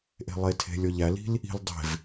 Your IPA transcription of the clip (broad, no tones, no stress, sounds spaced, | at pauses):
ʔ e̤ lˠ e tʰ e̤ lʲ ɔ ʎ æ l i̤ l | i̤ l dˤ e̤ v